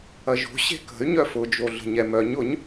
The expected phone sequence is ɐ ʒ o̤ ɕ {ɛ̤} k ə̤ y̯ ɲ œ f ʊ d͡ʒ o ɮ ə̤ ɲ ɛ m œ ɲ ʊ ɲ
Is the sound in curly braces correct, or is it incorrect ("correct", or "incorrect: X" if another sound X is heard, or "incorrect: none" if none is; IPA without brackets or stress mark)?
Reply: incorrect: e̤